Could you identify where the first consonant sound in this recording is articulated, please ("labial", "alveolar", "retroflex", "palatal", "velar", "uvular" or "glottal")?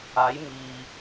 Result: palatal